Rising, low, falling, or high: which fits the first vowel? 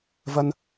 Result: high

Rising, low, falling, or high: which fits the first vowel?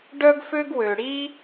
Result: high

